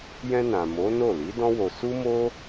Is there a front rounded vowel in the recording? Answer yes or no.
no